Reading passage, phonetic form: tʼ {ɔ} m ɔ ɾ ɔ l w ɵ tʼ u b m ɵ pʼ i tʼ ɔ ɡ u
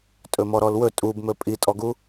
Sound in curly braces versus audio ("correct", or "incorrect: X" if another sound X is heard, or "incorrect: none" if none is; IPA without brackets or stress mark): incorrect: ɵ